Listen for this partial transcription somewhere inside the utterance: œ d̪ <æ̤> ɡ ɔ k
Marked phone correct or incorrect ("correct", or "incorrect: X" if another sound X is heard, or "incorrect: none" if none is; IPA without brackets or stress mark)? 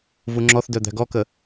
correct